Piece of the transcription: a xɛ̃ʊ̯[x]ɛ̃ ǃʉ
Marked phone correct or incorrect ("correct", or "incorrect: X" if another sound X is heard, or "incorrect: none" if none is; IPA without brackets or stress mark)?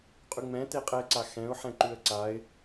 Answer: incorrect: ħ